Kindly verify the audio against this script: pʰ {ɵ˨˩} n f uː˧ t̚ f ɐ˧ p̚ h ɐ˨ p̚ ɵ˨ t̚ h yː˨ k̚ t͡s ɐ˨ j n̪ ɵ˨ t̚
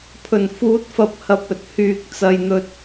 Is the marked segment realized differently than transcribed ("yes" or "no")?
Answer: no